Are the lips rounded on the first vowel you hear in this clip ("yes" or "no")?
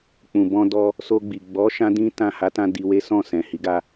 yes